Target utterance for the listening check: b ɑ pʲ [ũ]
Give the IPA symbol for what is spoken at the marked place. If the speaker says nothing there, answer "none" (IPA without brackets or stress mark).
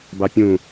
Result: ũ